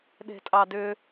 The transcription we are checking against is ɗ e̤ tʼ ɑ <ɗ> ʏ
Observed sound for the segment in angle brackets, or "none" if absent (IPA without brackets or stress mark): d